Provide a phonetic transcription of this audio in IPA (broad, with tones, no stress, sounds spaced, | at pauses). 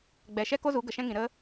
ɡ͡b ɛ˨ ʃ ɛ˦ k o˦ z u˨˦ ɡ ə˨ ʃ ɛ̃˦ ŋ ĩ˨ ɾ ə˦